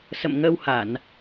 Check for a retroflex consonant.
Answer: absent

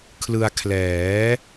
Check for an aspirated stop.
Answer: present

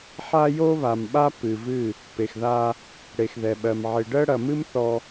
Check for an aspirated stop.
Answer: absent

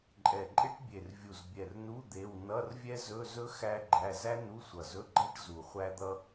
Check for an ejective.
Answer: present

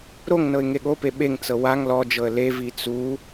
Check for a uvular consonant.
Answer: absent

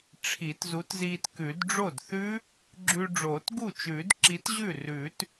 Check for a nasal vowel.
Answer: absent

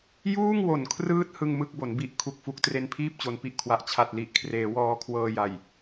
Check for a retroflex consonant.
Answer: absent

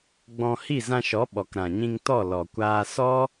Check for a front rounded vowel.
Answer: absent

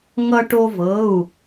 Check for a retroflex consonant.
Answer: present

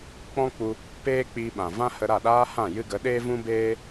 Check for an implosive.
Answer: present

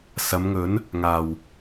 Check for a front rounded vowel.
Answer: absent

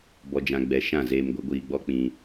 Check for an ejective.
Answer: absent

